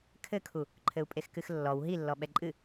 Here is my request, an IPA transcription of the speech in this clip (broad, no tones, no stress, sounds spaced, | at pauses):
kʰ ɘ kʰ u | ǃʰ ɘ u̯ pʼ e x k ɨ x lː ɔ w ɦ i lː ɔ ɓ ɛ ǃʼ ɨ